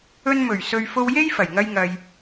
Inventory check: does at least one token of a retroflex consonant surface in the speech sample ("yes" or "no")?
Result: no